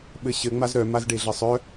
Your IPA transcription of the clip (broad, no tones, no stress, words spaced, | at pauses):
ɓɘɕɘ ŋ͡mazɾœ mazɖeɮɘsˤœ